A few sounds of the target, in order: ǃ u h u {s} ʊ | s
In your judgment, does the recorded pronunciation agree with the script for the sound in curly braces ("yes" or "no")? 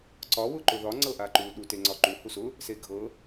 yes